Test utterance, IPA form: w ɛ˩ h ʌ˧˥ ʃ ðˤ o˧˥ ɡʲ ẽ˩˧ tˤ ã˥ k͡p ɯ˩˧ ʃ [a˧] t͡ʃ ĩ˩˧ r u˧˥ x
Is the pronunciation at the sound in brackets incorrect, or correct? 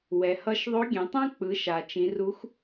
incorrect: a˩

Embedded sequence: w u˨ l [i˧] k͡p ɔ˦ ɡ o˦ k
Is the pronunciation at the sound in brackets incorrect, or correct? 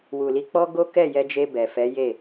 correct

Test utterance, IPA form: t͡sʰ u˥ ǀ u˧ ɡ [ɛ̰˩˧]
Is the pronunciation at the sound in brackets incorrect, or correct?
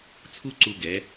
incorrect: ɛ˩˧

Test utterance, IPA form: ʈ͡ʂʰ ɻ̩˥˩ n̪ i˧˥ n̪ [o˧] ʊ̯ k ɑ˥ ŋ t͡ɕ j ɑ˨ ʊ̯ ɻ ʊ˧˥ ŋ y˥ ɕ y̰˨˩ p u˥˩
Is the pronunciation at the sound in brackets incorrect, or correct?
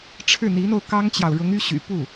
correct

